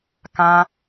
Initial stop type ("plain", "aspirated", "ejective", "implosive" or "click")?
plain